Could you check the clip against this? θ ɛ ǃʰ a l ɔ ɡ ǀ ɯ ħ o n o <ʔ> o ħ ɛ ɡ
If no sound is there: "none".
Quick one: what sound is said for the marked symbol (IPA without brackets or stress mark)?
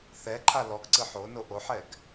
ʔ